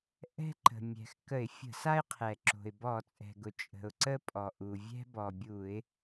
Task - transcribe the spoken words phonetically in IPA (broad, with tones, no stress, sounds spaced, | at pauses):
ʔ ɛ̤˥ ǃ ə̤˩ mʲ ɛ̤˩ x k ə˧˩˧ ɪ̯ fʲ ə̤˧˩˧ s a˥ ɪ̯ qʰ ɛ˩ ǁ o̤˩ ɪ̯ b ɔ˧˩˧ t͡sʼ ɛ̤˩ ɡ ʊ˩ t͡ʃʼ ə̤˩ ʊ̯ ǀ ə˥ pʼ ɔ˩ ʔ u˩ vʲ ɛ̤˥ b ɔ˩ bʲ u˧˩˧ ɪ̯